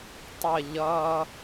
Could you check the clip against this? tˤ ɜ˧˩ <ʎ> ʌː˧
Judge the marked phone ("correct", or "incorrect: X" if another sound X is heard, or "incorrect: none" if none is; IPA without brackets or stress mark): correct